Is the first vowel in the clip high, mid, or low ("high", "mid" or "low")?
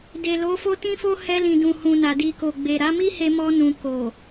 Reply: mid